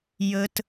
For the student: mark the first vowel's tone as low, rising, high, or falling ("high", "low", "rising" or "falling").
high